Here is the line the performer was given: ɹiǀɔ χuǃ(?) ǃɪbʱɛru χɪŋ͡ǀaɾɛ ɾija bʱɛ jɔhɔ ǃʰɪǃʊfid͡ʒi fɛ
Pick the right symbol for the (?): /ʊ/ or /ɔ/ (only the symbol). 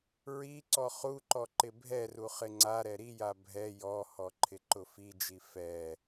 ɔ